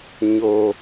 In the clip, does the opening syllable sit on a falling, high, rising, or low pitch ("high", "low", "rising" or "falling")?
low